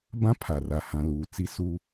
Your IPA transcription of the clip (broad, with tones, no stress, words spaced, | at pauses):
bã˦pʰa˨ ra˨ hã˨luː˨ t͡si˦suː˦